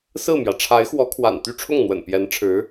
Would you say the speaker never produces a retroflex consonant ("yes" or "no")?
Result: no